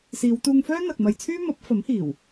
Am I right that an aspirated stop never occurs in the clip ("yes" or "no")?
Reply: no